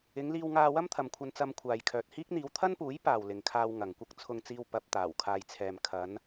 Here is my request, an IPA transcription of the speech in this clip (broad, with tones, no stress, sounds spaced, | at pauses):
ɪ˨˧ ŋ l iː˧ w ŋ aː˧ w ɐ˥ m t̪ʰ ɐ˨ m kʷʰ ɐ˧ n t͡s ɐ˧ m kʷʰ aː˨ j kʰ œː˨ t̚ h iː˥ k̚ n̪ iː˨˧ w t̪ʰ ɐ˥ n p uː˨˥ j p aː˨ w l ɪ˨ ŋ kʰ aː˧ w ŋ ɐ˨ ŋ kʷ ɐ˥ k̚ t͡sʰ ʊ˧ ŋ t͡s iː˧ w p ɐ˧ p̚ t̪ aː˨˩ w kʰ aː˨ j t͡sʰ ɛː˨ m kʰ ɐ˨˧ n